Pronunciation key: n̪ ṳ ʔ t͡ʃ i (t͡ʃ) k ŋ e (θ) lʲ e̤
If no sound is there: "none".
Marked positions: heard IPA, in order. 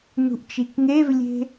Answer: none, v

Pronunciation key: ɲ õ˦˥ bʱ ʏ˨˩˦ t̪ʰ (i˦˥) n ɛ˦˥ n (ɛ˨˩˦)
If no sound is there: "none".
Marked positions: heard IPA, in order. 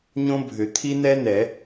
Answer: i˦˥, ɛ˨˩˦

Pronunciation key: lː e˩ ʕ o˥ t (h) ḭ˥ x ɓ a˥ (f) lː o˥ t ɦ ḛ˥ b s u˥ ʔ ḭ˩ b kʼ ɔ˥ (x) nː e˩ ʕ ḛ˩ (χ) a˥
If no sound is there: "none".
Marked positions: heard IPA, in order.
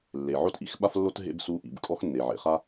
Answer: ʔ, f, x, χ

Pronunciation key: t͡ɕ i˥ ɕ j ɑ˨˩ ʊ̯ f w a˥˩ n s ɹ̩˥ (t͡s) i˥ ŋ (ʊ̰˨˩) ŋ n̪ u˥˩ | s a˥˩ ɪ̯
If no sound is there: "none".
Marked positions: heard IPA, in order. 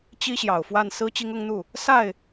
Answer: t͡ɕ, ʊ˥

